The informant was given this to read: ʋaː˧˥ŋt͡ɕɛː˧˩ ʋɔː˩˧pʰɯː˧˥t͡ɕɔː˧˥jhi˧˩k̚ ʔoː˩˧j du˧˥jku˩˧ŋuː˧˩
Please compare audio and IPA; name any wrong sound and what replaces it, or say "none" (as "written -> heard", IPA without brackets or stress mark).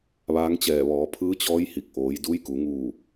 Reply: none